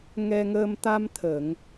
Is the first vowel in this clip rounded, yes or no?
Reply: no